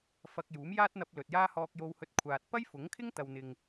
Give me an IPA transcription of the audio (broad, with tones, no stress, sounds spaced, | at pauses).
f ɐ˧ k̚ j uː˨˥ m j aː˥ t̚ n̪ ɐ˧ p̚ l ɵ˨ t̚ j aː˥ h ɔː˧ k̚ j o˧ w h ɵ˧ t̚ kʷʰ aː˨ t̚ p ɐ˥ j f ʊ˨˥ ŋ kʰ ɪ˥ ŋ t̪ ɐ˨ w n̪ ɪ˨ ŋ